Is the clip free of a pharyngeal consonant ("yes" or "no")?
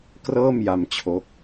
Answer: yes